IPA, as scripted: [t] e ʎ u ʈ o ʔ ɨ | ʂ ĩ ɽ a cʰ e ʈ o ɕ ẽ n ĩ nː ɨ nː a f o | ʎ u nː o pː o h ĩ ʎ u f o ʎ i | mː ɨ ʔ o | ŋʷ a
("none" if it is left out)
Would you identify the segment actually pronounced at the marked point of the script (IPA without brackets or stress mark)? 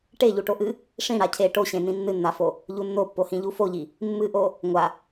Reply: ʈ